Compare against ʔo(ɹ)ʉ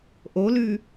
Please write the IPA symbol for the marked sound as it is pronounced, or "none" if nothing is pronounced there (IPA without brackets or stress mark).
l